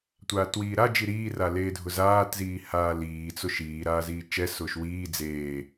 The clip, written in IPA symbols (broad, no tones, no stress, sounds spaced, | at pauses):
tʷ aː t w iː ɾ a d͡ʒ i ɾ iː r a l eː dʱ ʊ z aː t z iː h aː l iː t͡s ʊ ʃ iː ɾ aː z iː t͡ʃ ɛ s ʊː ʃ w iː d͡z eː